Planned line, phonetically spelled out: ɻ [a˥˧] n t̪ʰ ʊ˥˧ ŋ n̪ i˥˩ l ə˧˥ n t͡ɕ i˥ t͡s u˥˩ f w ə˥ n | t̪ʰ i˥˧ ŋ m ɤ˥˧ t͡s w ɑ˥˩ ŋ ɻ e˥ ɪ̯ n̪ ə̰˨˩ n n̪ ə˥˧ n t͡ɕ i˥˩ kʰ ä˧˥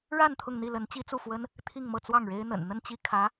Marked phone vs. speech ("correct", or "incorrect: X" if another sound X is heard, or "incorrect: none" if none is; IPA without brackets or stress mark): correct